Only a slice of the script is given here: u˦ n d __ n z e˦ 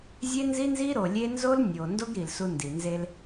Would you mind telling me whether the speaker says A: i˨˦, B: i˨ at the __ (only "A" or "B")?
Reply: B